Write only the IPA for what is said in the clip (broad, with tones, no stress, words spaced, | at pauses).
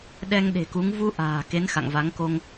ɗɛ˧ŋɗe̤˨˩ku˨˦ŋ vu˧ ʔa̤ː˨˩ ke˨˦nxa̰˧˨ŋva˨˦ŋ ko˧ŋ